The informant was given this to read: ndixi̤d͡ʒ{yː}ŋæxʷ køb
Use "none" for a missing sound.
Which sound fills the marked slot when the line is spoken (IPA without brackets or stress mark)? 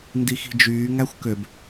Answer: yː